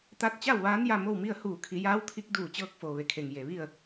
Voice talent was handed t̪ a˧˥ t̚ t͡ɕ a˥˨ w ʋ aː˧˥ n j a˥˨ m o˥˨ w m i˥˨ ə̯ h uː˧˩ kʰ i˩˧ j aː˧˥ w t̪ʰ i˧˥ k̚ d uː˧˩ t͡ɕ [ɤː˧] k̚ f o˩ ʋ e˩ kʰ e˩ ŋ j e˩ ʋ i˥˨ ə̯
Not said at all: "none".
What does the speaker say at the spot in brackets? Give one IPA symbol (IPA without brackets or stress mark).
ɤː˧